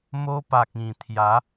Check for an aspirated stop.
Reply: present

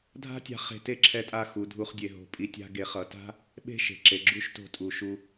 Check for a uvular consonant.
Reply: present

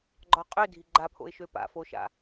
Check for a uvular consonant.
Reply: present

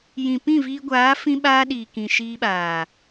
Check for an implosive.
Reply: present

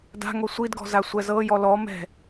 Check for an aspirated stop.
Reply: absent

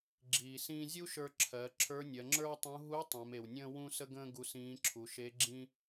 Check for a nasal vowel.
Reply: present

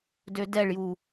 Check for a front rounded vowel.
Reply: present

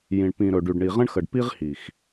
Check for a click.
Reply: absent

